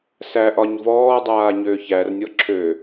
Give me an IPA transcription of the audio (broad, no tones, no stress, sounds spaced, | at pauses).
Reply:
s æ ʔ ɒ ɲ v ɔː dˤ aː ɲ øː ç æ r nʲ ɔ ǁʰ ø